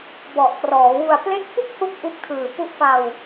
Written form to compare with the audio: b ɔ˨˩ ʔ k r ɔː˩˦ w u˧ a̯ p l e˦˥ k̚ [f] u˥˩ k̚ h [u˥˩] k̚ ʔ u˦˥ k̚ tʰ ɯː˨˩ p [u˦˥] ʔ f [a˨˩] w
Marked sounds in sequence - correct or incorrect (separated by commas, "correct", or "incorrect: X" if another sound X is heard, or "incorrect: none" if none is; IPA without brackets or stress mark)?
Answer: correct, incorrect: u˦˥, correct, incorrect: a˧